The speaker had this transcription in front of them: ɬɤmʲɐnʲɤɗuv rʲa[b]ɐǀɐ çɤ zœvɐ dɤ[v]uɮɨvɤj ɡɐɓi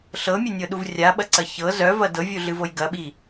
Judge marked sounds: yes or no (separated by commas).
no, no